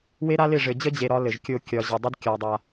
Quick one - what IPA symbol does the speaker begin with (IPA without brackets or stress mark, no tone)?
w